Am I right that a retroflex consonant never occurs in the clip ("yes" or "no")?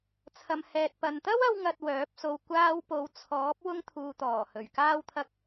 yes